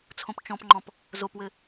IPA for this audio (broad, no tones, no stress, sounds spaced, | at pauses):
t͡sʰ õ p t͡ʃ ɔ̃ p ŋ͡ǃ ɔ̃ p | z o p w ɘ